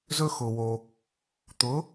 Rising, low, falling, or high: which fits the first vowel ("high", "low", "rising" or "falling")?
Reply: high